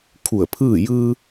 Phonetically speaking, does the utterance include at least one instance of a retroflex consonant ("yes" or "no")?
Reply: no